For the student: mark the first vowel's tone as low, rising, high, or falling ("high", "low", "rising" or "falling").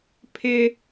high